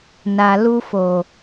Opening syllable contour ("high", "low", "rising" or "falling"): low